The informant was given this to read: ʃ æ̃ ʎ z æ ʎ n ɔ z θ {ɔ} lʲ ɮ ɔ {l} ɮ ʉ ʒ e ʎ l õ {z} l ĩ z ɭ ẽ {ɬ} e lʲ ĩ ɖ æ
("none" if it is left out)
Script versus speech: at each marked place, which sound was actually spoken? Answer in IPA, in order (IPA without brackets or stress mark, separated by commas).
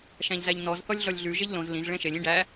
ɔ, lʲ, z, ʃ